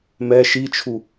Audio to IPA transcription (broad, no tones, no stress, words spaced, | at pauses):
mɛ ʃit͡ʃʰu